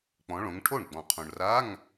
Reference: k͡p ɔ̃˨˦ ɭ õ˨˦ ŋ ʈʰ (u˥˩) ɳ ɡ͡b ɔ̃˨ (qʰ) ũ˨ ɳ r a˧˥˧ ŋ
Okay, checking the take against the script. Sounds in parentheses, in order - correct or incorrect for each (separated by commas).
incorrect, correct